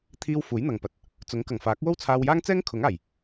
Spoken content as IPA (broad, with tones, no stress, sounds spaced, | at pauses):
t̪ʰ iː˧ w f uː˨˥ j n̪ ɐ˨ ŋ p ɐ˨ t̚ | t͡s ʊ˨˥ ŋ k ɐ˨˩ ŋ f aː˨˥ k̚ w o˥ w t͡sʰ aː˧ w j aː˥ ŋ t͡s ɛː˥ ŋ kʰ ʊ˨˥ ŋ aː˨˩ j